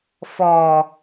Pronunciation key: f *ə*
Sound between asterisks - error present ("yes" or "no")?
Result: yes